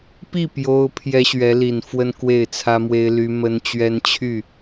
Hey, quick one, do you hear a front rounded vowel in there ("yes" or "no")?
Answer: yes